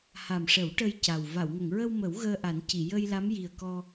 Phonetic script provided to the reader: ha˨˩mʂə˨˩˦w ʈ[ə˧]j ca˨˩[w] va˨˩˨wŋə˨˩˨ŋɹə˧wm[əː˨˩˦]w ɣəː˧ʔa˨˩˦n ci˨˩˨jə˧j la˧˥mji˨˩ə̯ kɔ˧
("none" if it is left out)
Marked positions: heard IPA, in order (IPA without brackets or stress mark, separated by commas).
ə˧, w, ə˨˩˦